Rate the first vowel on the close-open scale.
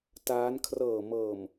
open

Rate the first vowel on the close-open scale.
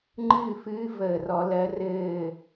close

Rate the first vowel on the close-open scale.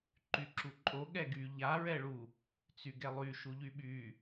close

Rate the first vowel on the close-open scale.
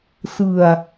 close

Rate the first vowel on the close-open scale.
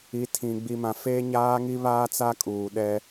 close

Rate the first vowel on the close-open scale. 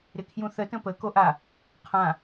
close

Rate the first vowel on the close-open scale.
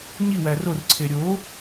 close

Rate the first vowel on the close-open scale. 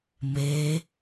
mid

